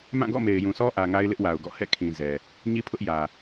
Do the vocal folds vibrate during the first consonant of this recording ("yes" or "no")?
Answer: yes